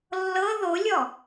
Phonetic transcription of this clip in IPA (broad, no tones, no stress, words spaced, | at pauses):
lːɤ ðolʲɔ